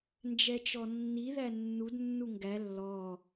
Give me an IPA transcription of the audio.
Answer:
n d͡ʒ ɛ t͡ʃ ɔ nː i ð æ nː u d nː u ŋ ɡ æ lː ɔ

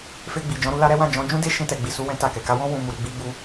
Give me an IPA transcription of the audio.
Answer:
f e˧ ɡ͡b i˨ d͡ʒ ɔ̃˨˦ ɾ u˧ l a˧ ɾ ɛ˦ w ã˦˨ d͡ʒ ɔ̃˨˦ d͡ʒ ũ˦ d e˦ ʃ ĩ˧ t ɛ˨ ɡ͡b i˨ s u˧ w ɛ̃˦ t a˦˨ k ɛ˨ k a˧ w ɔ̃˦ w ũ˧ m u˨ ɾ i˧ ɡ͡b i˦ ɡ͡b u˦

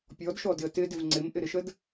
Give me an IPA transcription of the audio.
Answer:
pʲ ɔ d ʃ ɔ d ɪ ə̯ t ɪ d ɪ v ŋ͡ǀ ɪ m ʔ ɪ ɾ ɪ ʃ ə d

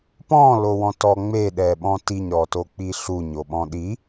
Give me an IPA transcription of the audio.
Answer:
p ɔ̃ l o w ɔ̃ t ɔ ŋ͡m e ɗ ɛ ɓ ɔ̃ t i ɲ ɾ ɔ t o k͡p i ɬ u ɲ o ɓ ɔ̃ ɗ i

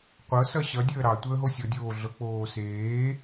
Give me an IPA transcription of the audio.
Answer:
qʷ ɤ s ʌ ɕ ʌ dʲ əː ɾ ɑ tʷ əː ɦ o sʲ ɤ dʲ oː ɮ ɤ k͡p oː s eː

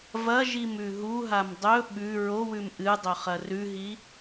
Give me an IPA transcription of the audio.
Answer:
v ɐ ʒ i m ʉ ɦ u ɦ a m dˤ ɵ ɓ ʉ ɹ o w ʉ m ʔ ɨ dˤ ɵ χ ɐ r ʉ ɦ i

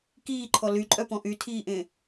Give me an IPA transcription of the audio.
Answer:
k iː ǃʰ ɔ l y ǃʼ œ p ɔ̃ ʔ y tʰ iː ʔ ẽ

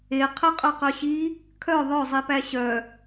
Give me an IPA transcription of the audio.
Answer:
e qʰ ə qʼ œ q œ ɕ i | kʰ œ ðˤ œ zˤ i p æ ɕ œ

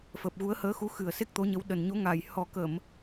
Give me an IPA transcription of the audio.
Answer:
f əː˨˩ p̚ ɣ u˨˦ ə̯ h əː˨˦ x u˨˦ x ɨ˨˩ ə̯ s e˦˥ k̚ t̪ o˨˦ ɲ ə˨˦ w ɗ ə˨˩ n ɲ o˨˦ ŋ a˨˩ j h ɔ˨˩ k ə˧˩˨ m

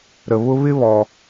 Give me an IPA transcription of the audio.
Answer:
ɾ ə˩ β ʊ˧ β ɪ˥ β ɔ˩

